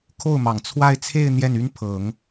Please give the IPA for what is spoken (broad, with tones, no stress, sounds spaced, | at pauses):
kʰ o˥˩ ʊ̯ m ɑ˨˩ ŋ t͡sʰ w a˥˧ ɪ̯ t͡sʰ e˥˧ ɪ̯ n̪ j ɛ˥˩ n y˥ n pʰ ɤ˨˩˦ ŋ